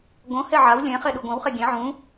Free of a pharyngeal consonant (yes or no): no